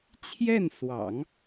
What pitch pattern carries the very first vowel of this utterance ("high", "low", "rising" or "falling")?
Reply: falling